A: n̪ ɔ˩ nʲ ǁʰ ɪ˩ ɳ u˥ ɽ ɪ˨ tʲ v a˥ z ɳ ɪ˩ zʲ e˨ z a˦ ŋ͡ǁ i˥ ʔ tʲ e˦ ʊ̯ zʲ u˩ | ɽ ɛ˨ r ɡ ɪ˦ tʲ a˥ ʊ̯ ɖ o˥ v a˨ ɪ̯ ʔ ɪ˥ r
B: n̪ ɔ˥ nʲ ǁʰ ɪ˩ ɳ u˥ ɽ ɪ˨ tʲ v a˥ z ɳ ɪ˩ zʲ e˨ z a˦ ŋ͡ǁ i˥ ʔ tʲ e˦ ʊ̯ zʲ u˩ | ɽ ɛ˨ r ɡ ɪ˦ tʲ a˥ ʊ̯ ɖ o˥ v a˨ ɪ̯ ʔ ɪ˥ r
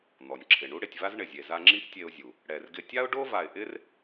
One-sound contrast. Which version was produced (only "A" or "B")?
A